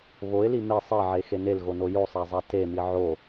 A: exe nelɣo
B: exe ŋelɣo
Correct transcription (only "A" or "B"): A